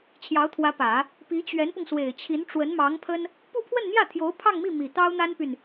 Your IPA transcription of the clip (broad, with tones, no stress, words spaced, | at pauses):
t͡ɕʰjɑ˧˥ʊ̯t̪ʰwä˧˥pä˨˩˦ | pi˧˥t͡ɕɥɛ˧˥npʊ˧ŋ swe˨˩ɪ̯t͡ɕʰi˧˥n ʈ͡ʂwə˧˥nmɑ˧˥ŋpʰə˥n | pu˥˧pʰwə˥˧nn̪jä˥˩t̪ʰjo˧˥ʊ̯ pʰɑ˥˧ŋmi˥˩ mi˨˩t̪ɑ˥ʊ̯n̪a˥npy˨n